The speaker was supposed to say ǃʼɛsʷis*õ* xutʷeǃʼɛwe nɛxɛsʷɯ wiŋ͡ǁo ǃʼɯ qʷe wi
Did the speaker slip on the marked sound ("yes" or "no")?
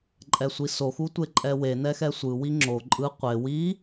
yes